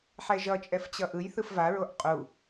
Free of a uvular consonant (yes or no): no